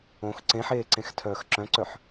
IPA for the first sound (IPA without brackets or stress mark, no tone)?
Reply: õ